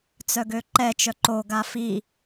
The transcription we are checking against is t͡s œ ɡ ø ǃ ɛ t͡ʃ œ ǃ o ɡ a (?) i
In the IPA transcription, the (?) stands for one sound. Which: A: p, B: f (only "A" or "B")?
B